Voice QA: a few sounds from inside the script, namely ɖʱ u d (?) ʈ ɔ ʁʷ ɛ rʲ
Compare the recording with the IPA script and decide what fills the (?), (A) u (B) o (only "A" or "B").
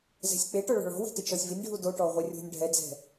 B